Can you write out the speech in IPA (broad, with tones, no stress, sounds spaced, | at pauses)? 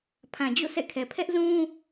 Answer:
pʰ ã˨ d͡ʑ o̰˦˨ s ɛ̰˦˨ kʰ ɛ˨ pʰ ɛ˦ ʔ z ũ˦